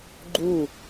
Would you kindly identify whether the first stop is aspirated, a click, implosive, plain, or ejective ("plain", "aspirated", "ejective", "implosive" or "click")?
click